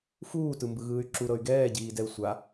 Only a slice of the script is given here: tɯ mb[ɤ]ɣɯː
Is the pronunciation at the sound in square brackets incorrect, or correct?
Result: incorrect